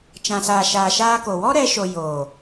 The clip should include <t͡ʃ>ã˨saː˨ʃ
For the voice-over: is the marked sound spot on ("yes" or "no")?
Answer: yes